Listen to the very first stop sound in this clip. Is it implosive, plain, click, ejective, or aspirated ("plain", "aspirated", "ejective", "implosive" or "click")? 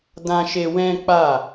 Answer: plain